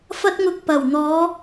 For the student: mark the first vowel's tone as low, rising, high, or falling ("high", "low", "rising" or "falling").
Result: high